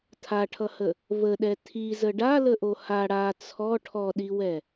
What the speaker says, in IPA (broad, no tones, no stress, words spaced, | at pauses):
tʰaʈʰʌhə | vəɗɛ tʰizə ɖaləʔo ha ɽa t͡sʰɔ ʈʰɔɗiwɛ